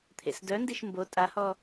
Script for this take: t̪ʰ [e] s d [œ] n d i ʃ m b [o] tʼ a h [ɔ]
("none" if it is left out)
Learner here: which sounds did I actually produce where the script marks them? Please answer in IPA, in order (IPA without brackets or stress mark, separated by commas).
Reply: ḛ, œ, o, ɔ